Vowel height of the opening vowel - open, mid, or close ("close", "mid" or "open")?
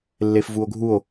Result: mid